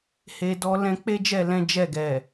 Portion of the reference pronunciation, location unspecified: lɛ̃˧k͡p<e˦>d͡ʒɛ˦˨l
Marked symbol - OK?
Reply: yes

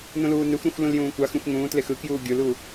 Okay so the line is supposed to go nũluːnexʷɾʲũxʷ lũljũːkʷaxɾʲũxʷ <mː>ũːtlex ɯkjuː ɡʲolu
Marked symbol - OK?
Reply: no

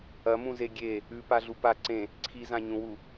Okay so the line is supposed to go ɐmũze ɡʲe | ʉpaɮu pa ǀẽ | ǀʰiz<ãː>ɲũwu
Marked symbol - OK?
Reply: no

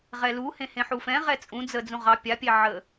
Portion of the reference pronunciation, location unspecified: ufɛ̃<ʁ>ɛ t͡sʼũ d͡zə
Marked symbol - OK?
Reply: yes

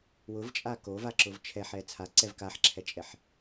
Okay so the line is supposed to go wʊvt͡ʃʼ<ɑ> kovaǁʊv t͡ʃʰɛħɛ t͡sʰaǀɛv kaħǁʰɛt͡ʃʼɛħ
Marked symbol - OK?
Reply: no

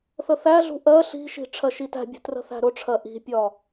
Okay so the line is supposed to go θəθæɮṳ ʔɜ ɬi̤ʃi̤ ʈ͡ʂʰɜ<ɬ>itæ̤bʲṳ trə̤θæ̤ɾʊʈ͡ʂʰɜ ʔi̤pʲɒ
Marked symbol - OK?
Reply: no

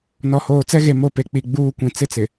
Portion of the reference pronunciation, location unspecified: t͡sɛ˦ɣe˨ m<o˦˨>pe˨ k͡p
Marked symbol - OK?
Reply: yes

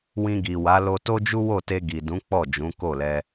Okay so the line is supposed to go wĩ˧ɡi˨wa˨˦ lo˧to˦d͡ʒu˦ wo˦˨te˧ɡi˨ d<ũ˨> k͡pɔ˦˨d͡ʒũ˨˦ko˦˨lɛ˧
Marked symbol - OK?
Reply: no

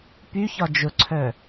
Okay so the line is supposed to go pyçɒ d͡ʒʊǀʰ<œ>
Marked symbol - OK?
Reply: yes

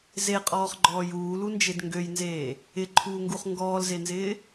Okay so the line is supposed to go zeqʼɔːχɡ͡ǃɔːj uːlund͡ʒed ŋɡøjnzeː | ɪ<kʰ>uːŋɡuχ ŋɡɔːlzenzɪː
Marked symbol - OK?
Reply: no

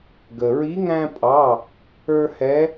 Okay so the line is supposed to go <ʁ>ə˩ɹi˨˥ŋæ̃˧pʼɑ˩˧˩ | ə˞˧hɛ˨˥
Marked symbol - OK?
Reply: no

